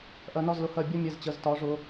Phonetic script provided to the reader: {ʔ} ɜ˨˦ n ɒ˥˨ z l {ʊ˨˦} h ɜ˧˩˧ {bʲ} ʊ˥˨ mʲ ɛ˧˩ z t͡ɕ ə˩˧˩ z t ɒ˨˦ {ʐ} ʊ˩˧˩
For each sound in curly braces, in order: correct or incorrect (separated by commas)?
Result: correct, correct, correct, correct